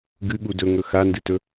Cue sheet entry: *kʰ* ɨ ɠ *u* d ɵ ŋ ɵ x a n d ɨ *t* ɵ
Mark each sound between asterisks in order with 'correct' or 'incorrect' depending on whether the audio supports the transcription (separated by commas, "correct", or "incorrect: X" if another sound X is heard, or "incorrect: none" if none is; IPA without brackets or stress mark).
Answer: incorrect: ɡ, correct, correct